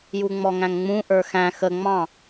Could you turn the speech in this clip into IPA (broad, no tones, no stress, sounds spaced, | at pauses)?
j u ŋ͡m ɔ ŋ æ̃ ŋ ŋ͡m ũ ʔ ə˞ x æ̃ x ə ŋ͡m ɑ̃